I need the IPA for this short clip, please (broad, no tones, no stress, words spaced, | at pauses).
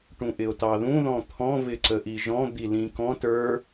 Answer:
ʈũʔɪo̯tɑðũ ðɔ̃t̪ʰɔ̃ vɪǀəʔiʒɔ̃ d̪ilĩkɔ̃t ə˞